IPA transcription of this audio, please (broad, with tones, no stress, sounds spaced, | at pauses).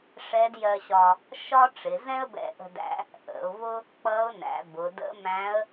ʂ ɛ˧˥ d j ɜ˧ ɕ ɒ˧ | ʃ ɒ˥ ʈ͡ʂ ɪ˩˧ z ɛ̃˥ ə̯ b ɛ̰˧ ʔ ə̤˧ d æ̰˧˥ | ʔ ə̰˩˧ ʊ̯ v ʊ˥ | k͡p ʌ˧˥ ʊ̯ n æ̰˩˧ b ʊ˩˧ d ə̰˧˥ m æ̃˧˥ ə̯